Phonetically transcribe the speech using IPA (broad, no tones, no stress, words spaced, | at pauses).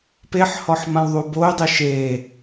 peħhɔħ mãwðˤuboy̯dˤi ʃe